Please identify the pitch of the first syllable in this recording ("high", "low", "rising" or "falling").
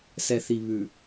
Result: low